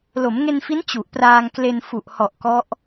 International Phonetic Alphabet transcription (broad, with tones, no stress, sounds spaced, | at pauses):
l o˩˦ m ŋ e˧ n f i˦˥ n t͡ɕ u˨˩ ʔ p r aː˧ ŋ k l e˧ n f u˨˩ ʔ h ɔ˨˩ ʔ k ɔ˦˥ ʔ